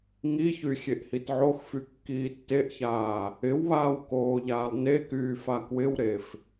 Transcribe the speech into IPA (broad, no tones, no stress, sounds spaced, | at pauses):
ŋ i ç y xʲ e ʔ h i t ʕ o x f y kː iː tː e ʔ ç aː | ɪ w β aː w k oː ʎ aː lˠ n e k yː f a k w ɪ w ɾ e f